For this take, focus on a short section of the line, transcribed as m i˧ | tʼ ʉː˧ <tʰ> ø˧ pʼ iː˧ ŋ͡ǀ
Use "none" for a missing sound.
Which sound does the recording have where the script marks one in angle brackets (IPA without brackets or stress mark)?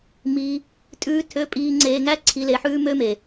tʰ